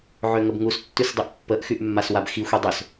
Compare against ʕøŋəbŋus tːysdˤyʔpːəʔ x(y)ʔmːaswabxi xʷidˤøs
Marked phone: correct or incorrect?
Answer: correct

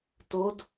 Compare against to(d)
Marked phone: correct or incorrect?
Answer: correct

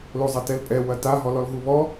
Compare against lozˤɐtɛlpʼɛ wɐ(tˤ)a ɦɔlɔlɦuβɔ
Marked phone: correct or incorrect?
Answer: incorrect: t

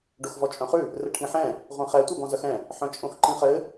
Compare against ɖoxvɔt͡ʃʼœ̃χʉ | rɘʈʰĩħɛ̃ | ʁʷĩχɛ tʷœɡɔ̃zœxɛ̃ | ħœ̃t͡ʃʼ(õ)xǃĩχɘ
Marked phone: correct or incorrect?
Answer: correct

